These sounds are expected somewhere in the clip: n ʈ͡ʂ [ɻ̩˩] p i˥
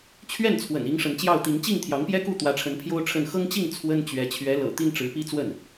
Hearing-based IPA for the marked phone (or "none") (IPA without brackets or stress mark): ɻ̩˧˥